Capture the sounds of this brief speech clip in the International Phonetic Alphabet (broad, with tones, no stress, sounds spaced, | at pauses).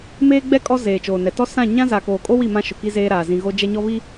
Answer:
m eː˦ ɡ͡b ɛ˦ kʼ ɔ˦ z eː˨ t͡ʃ oː˨ n ɛ˨ t ɔ˦ s ã˦˨ ɲ ã˦ z aː˨ k oː˨ kʼ o˦ w i˦˨ m ã˦ ʃ ʊ˨ k i˦ z eː˦ ɾ aː˨ z ĩ˨ ɣ o˦ d͡ʒ ɛ˦ ɲ ɔ˦ β i˦